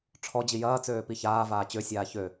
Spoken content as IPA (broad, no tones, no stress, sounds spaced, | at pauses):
ʈ͡ʂʰ ɔ d͡ʑ i j ɐː t͡s øː p i ç aː v aː t͡ɕ ø sʲ aː ç ø